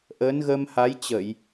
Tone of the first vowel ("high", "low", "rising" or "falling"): rising